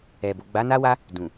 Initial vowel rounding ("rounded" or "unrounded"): unrounded